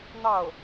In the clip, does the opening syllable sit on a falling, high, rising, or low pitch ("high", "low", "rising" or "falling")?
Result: falling